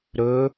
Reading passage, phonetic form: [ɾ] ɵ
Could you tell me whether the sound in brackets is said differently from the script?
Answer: no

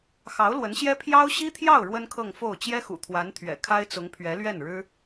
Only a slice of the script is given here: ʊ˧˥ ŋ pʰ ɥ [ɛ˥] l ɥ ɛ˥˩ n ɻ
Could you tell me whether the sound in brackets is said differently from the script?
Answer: yes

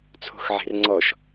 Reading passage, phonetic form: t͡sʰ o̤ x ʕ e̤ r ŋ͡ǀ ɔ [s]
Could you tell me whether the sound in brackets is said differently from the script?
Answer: yes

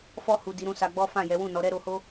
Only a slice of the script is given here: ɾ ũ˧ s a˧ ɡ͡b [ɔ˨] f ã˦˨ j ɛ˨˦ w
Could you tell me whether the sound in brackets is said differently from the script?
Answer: yes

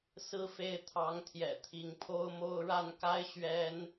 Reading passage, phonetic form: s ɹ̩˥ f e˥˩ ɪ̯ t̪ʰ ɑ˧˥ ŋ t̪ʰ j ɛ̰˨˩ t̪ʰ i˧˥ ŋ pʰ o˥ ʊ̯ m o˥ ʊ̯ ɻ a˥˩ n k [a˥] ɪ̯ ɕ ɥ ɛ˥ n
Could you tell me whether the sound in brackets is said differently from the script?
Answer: no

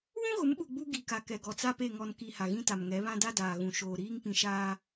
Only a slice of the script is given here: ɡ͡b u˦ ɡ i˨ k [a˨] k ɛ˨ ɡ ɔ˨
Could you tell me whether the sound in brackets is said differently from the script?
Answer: no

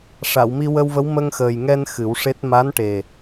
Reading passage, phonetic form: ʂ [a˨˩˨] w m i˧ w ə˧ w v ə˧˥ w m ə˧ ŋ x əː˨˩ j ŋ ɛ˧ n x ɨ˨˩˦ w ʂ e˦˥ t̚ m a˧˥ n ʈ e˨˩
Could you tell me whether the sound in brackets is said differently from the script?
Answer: no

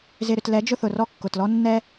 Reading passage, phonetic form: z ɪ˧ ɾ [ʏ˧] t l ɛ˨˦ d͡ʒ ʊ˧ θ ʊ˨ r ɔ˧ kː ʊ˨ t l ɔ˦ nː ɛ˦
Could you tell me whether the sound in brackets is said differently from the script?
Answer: no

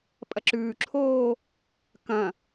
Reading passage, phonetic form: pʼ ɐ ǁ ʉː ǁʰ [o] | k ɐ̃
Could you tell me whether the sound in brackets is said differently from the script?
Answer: yes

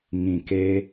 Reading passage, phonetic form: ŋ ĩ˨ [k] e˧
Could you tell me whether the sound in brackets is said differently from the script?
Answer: no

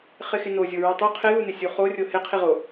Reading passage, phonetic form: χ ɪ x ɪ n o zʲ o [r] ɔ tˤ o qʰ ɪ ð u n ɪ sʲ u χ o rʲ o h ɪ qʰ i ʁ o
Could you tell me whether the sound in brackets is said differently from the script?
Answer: yes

